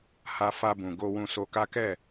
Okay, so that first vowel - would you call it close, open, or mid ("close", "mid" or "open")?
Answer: open